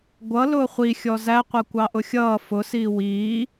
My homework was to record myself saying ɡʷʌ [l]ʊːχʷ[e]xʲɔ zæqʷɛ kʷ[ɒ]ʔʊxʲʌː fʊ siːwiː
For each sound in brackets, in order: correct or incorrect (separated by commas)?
correct, incorrect, incorrect